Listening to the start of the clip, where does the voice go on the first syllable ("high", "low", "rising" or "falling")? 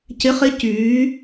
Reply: rising